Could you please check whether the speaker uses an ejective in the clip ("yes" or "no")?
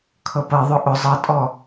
yes